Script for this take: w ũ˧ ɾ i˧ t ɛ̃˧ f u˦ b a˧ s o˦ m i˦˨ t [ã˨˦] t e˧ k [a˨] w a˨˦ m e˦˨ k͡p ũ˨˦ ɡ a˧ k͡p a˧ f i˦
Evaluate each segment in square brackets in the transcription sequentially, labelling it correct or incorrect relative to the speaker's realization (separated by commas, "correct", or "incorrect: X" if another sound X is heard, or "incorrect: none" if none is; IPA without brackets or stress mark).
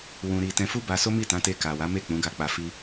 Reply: correct, correct